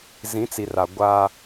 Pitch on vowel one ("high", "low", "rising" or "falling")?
rising